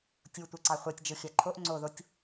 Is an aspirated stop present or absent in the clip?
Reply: present